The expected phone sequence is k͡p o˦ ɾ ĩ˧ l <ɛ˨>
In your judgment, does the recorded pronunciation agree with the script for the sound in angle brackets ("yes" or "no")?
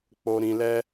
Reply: no